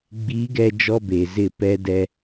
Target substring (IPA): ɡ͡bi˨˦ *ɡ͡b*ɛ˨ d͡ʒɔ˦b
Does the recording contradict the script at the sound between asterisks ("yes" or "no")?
yes